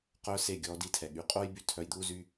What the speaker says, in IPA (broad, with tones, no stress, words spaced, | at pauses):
qœ˦se˦˨ ɡʲɔː˧di˧tʰɛ˨ ɠy˨qʼo˦j by˦tʰœ˧jd̪uː˦ zy˦